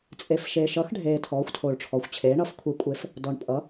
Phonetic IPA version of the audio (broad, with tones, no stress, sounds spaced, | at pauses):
t͡sʼ e˨ f ʃ e˨ ʃ ʌ˨˥ x ɖʱ eː˨ tʰ ɔː˨˥ xʷ tʰ o˨ ɭ ʈ͡ʂʰ ɔ˨ xʷ t͡ɕʰ eː˨˥ ɳ ʌ˨˥ f kʷʰ e˨˥ kʷʼ e˨˥ f | d ɔ˨ ɳ pʼ ʌ˨˥